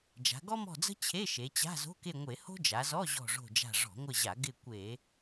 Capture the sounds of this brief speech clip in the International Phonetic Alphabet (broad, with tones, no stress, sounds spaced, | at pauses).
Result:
d͡ʒ a̤˩˧ ɡ ɔ˥ m ɔ̤˦˨ d͡z ə̤˥ t͡ɕʰ e˧˥˧ ʃ e˩˧ t͡ɕ a̤˧˥˧ z o̤˧˥˧ k e˦˨ ŋʷ e˧˩˧ h o̤˥ d͡ʒ a˩˧ z ɔ˧˥˧ ʑ ɔ̤˦˨ ʐ o̤˦˨ d͡ʒ a̤˦˨ ʐ ɔ̤˧˩˧ ŋʷ ɪ˦˨ ʑ a˧˩˧ ɡ ɪ˦˨ kʷ e˧˩˧